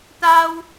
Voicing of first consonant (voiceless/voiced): voiceless